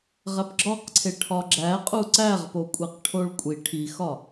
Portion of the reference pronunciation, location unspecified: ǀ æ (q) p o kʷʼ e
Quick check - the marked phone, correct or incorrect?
incorrect